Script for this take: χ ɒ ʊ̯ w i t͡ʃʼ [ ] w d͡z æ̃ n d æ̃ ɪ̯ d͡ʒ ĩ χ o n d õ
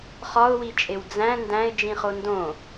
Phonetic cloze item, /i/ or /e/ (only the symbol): e